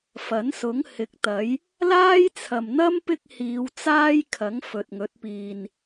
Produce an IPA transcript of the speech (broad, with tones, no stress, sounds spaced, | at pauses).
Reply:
f ɐ˨˥ n s ʊ˨˥ ŋ h ɪ˨˥ k̚ t̪ ɐ˨˥ j | l aː˥ j t͡sʰ ɐ˨ m n̪ ɐ˥ m p ɪ˥ k̚ h iː˨˧ w t͡s aː˥ j kʰ ɐ˨˥ ŋ f ɵ˨ t̚ ŋ ɵ˨˥ t̚ p iː˨ n